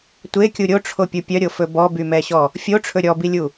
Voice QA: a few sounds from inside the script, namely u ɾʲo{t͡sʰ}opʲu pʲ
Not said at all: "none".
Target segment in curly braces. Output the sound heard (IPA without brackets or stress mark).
ʈ͡ʂʰ